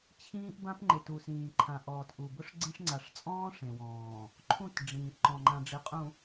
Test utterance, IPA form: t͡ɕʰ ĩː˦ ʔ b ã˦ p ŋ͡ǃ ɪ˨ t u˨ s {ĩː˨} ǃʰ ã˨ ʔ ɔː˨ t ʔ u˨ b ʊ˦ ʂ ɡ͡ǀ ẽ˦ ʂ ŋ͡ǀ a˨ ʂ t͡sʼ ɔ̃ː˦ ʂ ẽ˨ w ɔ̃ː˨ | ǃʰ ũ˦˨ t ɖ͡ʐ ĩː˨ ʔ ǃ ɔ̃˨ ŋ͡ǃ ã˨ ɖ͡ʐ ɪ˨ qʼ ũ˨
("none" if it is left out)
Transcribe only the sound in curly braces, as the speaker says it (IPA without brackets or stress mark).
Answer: ĩː˨